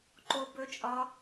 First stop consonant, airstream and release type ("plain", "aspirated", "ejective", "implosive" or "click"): click